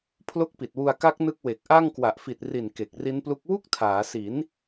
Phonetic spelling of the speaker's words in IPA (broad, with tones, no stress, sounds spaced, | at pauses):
pʰ l o˦˥ k̚ p i˨˩ t̚ w u˧ a̯ k a˦˥ k̚ n ɯ˦˥ k̚ w e˨˩ k̚ ʔ a˥˩ ŋ k w a˨˩ ʔ f i˨˩ t̚ r i˨˩ n k e˨˩ k̚ r i˦˥ n p l u˦˥ k̚ w u˥˩ k̚ tʰ aː˩˦ s i˩˦ n